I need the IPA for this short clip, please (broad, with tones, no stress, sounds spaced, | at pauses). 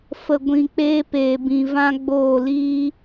f ə˧ ɡʷ ĩ˧ k͡p eː˦ p eː˧ b ĩ˧ v ã˦ ɡ͡b oː˦˨ l iː˦